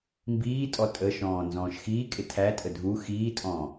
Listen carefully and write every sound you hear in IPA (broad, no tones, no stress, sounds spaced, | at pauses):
m b iː tʼ ɔ tʼ ə ʃ ɔ̃ː n z ɔ̃ː ʃ x iː kʼ ɪ tʰ æ tʼ ə dʱ u x iː tʼ ɔ̃ː